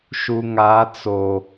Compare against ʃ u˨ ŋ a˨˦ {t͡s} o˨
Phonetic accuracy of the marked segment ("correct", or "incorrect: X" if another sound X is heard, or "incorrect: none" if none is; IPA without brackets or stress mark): correct